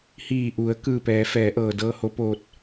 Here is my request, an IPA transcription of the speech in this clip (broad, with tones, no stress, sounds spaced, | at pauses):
h iː˧˩ ʔ u˩˧ ə̯ k ɯː˧˩ p ɛː˩˧ f ɛː˩˧ ʔ ɤː˩ d ɤː˧ h o˧˥ p oː˧ t̚